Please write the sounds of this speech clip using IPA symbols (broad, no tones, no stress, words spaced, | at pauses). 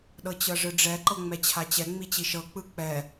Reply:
ɗɤt͡ɕɤʐɯɖ͡ʐɛ ǃɤŋ͡mɛt͡ɕʰat͡ɕɛ ŋ͡mit͡ɕiʃɤ k͡pɯk͡pɛ